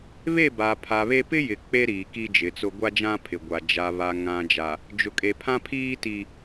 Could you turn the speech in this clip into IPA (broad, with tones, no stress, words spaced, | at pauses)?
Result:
βe˦˨ba˨ pʰa˨βe˦ pɪ˦jɪ˨ k͡pe˦ɾiː˨ ki˦d͡ʒɪ˨˦t͡sʊ˦ ɡʷa˦d͡ʒã˦pʰɪ˨ɡʷa˨ d͡ʒa˨ βa˨ŋã˨d͡ʒa˨ | d͡ʒʊ˨kʼe˨pʰã˦pʰiː˦ ti˦